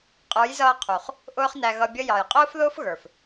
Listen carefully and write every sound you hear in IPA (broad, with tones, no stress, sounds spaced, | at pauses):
qʼ ə˞˨˦ j z ʌː˧ qʰ u˨ χ | ʔ ʊː˦ χ n æ˧ ɣ ʌ˧ bʲ ə˦ j ɑ˨ j qʼ ʊː˦ f ð ʊː˦ f ɣ ə˞˨ f